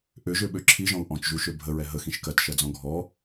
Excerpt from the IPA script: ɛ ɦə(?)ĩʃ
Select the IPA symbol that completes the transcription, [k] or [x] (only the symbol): x